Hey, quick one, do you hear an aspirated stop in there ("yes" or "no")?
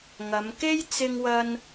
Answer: no